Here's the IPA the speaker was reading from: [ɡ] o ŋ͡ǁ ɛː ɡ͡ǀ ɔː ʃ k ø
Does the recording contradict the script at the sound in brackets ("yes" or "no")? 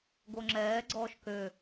no